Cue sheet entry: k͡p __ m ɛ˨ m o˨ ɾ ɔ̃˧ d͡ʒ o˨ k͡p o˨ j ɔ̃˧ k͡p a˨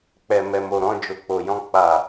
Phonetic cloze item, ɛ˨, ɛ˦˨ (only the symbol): ɛ˨